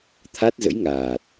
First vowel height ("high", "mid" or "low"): low